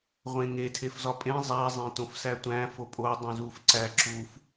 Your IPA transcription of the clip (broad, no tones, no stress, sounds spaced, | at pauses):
ʁʷ ẽ ŋ e tʰ e f z ɒ pʼ ẽ zˤ æ zˤ ẽ t õ f s æ tʷ æ̃ f o pʼ o dˤ ũ z u f ǀ æ ǁ u f